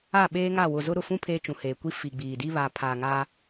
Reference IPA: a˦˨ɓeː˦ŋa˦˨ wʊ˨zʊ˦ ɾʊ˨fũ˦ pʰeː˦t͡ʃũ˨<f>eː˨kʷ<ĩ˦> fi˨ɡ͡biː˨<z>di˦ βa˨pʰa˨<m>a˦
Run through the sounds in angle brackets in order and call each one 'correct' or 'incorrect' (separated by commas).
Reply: incorrect, incorrect, incorrect, incorrect